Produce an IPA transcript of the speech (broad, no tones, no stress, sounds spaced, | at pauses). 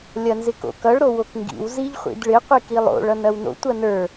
lʲ ɐ n z ɪ k o̰ k ʌ ɭ ɾ o w o k ŋ ɡ ḭ w z i ʎ χʷ ḭ d ɭ ɪ qʷ i k i lˠ o̰ ɭ ʌ n ɐ w n o̰ tʷ ɐ n ə˞